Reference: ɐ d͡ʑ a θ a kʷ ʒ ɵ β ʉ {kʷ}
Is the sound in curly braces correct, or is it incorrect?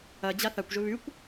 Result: correct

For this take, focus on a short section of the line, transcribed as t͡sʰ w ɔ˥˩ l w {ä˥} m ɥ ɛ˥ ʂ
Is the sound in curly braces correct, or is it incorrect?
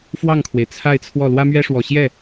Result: correct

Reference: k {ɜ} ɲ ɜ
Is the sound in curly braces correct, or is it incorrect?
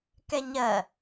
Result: incorrect: ɛ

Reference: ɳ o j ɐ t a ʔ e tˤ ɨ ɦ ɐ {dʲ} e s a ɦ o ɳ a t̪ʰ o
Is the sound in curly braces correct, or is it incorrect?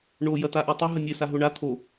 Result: incorrect: nʲ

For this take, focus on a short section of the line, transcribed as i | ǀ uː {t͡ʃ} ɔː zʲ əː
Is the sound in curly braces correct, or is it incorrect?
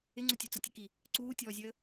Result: incorrect: tʲ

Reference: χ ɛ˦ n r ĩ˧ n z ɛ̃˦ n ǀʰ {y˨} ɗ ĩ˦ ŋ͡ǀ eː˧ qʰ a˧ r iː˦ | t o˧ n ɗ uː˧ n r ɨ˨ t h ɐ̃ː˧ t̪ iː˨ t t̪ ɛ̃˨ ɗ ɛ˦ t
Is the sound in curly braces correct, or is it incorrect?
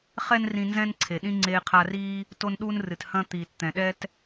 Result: incorrect: e˨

